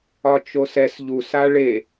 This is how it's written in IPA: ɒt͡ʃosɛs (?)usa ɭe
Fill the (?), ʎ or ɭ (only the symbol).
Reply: ʎ